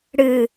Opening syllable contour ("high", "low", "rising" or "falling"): low